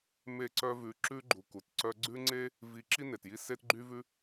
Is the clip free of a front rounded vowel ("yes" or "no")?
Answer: no